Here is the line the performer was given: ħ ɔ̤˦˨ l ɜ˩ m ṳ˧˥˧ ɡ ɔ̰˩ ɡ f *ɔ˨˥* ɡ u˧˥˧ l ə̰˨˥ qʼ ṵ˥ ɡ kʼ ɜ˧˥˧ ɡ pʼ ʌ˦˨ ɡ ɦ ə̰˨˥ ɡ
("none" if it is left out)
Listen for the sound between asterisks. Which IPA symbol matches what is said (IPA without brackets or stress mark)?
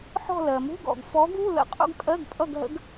ɔ˨˥